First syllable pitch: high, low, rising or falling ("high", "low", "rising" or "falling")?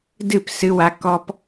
falling